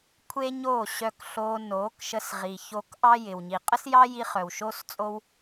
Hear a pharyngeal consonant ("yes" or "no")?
no